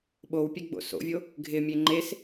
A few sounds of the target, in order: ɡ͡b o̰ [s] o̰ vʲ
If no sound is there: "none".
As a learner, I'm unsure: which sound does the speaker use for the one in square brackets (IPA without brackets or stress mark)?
s